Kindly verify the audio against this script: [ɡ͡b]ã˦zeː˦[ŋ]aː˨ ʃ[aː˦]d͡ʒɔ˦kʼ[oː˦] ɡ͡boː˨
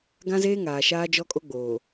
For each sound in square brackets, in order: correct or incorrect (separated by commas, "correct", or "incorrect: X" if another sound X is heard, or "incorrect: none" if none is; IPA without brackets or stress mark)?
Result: incorrect: ɡ, correct, correct, incorrect: o˦